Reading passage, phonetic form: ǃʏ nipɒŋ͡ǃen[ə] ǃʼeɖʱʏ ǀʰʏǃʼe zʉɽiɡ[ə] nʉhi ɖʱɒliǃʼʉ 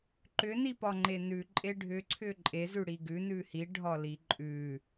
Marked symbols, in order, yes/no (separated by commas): no, no